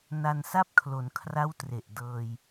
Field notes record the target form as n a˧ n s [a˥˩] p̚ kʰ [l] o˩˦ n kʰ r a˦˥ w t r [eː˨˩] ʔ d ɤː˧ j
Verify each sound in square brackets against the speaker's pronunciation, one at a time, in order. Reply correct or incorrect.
correct, correct, incorrect: e˨˩

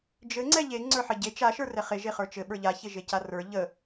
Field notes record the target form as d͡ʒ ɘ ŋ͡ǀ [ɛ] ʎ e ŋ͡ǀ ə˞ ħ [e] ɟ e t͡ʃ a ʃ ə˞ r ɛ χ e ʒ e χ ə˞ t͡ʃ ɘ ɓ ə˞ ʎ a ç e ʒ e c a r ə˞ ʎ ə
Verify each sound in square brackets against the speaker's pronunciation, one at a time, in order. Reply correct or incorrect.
correct, incorrect: ɘ

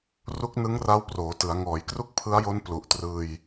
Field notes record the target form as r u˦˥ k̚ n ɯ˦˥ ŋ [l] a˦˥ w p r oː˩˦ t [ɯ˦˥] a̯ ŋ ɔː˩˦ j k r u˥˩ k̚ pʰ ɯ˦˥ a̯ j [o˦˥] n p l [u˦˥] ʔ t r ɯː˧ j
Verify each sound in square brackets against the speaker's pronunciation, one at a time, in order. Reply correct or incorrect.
incorrect: r, incorrect: ɯ˩˦, correct, incorrect: u˨˩

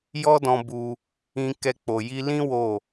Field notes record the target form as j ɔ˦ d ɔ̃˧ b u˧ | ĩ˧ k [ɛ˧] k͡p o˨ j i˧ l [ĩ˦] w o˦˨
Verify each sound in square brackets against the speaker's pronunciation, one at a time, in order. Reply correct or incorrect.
correct, correct

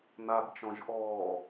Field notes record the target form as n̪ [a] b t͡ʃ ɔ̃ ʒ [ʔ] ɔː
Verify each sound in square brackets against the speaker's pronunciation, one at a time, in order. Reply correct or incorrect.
correct, correct

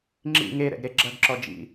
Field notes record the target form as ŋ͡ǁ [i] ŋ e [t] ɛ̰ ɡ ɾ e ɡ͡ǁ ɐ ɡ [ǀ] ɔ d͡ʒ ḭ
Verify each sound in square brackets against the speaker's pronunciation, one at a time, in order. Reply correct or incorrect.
incorrect: ḭ, incorrect: ɾ, incorrect: ǁ

